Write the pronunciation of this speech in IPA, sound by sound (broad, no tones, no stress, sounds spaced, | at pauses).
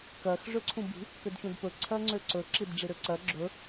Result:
k ɜ x ʐ ø ǀʰ ũ b i̤ | k ø d ç ũ d p ɵ ǀʰ ɜ ŋ͡ǀ ø ǀ ɵ ǁ i d ɖ͡ʐ i ɾ ø ǀ ɜ ɡ͡ǁ ɵ